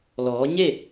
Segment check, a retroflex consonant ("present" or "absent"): absent